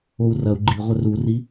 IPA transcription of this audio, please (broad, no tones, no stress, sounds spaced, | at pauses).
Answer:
o u̯ r ɐ u̯ ɡ͡ǃ i ʁʷ ɛ r u r i